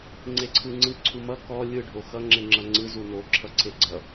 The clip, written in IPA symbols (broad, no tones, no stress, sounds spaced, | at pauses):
ŋ͡ǀ e ǀʰ ɯ ŋ͡ǀ ɯ ǀʰ u m ʌ k ɔ lʲ ɯ ɖʱ o x ʌ ŋ͡ǁ e ŋ͡ǁ ʌ ŋ͡ǀ ɯ z u n o ǁʰ ʌ ǀʰ e ɡ͡ǀ ʌ